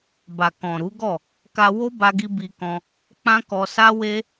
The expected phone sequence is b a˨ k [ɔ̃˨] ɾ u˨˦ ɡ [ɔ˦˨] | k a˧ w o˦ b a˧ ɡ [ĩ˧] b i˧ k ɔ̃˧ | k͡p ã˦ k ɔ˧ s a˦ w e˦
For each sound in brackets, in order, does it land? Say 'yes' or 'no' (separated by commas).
yes, yes, no